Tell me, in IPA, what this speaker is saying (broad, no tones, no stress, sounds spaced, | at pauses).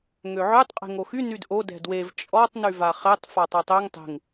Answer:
ŋ ø ʕ ø tˤ qʼ e̤ ŋ o x y n y d ʔ o d ɛ̤ d w e v t͡ʃʼ ɔ tˤ n y v a χ ɛ tˤ f a tˤ ø tˤ ø ŋ tˤ e̤ ŋ